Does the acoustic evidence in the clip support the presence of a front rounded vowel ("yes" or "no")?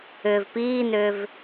yes